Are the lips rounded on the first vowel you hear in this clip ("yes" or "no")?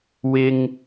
no